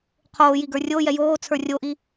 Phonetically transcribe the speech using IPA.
qʰ oː j i ɡ ə˞ rʲ o j ɛ j oː t͡sʰ ə˞ rʲ o ʔ i

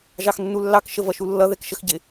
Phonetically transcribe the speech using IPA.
ʒ ɑ x nː u lː ɑ k ʃ ə v ʌ ʃ u lː ʌ ð ɛ k ʃ ə x ɟ ɪ

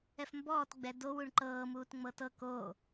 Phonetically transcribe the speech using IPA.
ɛ f m b ɔː t ɡ͡b ɛ d o w u ɳ ǃ ɤː m uː t ŋ͡m ɤ t ɤ k o

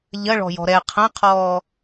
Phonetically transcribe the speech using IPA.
ʎ ɐ ɭ ɔ̤ j ɔ̤ ɾ ɛ qʰ ɐ̃ qʰ ɔː

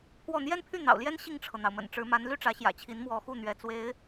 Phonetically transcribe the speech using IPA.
pʰ w ɔ˥˩ n̪ j ɛ˥ n pʰ y˥˩ n̪ ɑ̰˨˩ ʊ̯ l j ɛ˥ n ɕ i˥˩ ŋ ʈ͡ʂʰ ɤ˩ n̪ ɑ˩ ʊ̯ m ə̰˨˩ n ʈ͡ʂ ɻ̩˧˥ m a˧˥ n l y˥˩ ʈ͡ʂ ä˧˥ ɕ j ä̰˨˩ t͡ɕʰ i˧˥ n m w ɔ˧˥ x u˥˩ n̪ ɥ ɛ˧˥ t͡s w e˧˥ ɪ̯

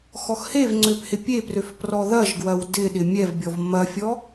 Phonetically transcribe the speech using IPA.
x ɔ x h e v ŋ͡ǀ ø p h ɪ pʲ e p r ø f p r ɔ ð ɐ ʒ ɡ w ɐ w d ɪ ɗ ɪ mʲ ɛ v bʲ ɔ v m ɐ fʲ ɔ

